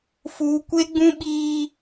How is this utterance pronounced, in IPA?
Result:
f uː˦ kʷ e˦ ɡ͡b ũ˦ ɓ iː˦

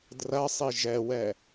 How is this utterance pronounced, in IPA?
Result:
d r ɐ sˤ i ʒ ɛ w ɛ

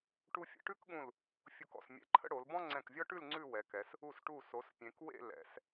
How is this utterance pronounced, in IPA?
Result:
ʈ u˧ fʲ ə̰˩˧ ʈ ʉ˥ k ɠ ũ˧˩ l | fʲ u˧˩ k ɔ̰˧˩ s mʲ ɛ̰˧˩ ǃʰ ə̰˥ ɽ o˩˧ l b ɔ̃˥ ŋ͡ǀ ɛ̃˧˩ k vʲ ɔ˥ ʈ ʉ˥˧ l ŋ͡ǀ ʉ˥˧ w ɛ˩˧ k ɛ˩˧ s | u˧˩ s ʈ u˧˩ s o˩˧ s pʲ ẽ˩˧ k w ḛ˥˧ l ɛ̰˩˧ s

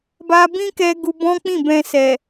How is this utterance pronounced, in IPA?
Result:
b a˧ b ĩ˦ k ɛ˧ ɡ u˧ b ɔ̃˦ k͡p ĩ˦˨ b ɛ̃˧ s ɛ˨

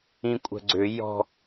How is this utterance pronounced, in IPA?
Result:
ĩ kʷʼ ə̤ ɡ͡ǀ ʏ j ɔ̤

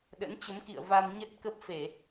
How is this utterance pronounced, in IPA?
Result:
ɗ ə̰˧˥ n t͡ɕ ə˨˦ m k ḭ˧˨ ə̯ v a˧ m ɲ ə˦˥ t̚ k ə˦˥ p̚ f e˧˩˨

